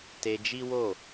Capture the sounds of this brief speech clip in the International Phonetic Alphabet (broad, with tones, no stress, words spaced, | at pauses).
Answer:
te˧d͡ʒi˦wo˦˨